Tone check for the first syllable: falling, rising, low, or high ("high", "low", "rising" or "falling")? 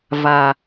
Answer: low